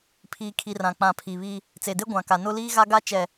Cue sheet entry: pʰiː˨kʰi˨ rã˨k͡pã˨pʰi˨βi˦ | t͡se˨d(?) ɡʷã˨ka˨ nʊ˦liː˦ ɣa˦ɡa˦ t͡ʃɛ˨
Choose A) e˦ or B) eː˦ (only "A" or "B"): A